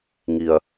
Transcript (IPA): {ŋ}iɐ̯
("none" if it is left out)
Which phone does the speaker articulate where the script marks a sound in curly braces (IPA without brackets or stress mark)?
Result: ŋ